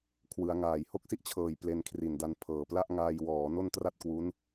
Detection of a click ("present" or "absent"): absent